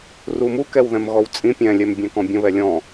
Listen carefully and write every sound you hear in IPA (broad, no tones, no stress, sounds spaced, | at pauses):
r u m u k ɛ w ð ɛ̃ m ɣ ɔ w t͡sʼ ĩ pʲ ɛ̃ lʲ ɛ m bʲ ɛ̃ k ɔ̃ bʲ ə̃ β ɛ lʲ ɔ̃